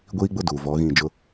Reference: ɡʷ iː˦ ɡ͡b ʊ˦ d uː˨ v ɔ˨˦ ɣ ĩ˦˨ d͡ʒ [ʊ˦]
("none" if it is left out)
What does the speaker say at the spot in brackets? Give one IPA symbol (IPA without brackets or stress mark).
ʊ˦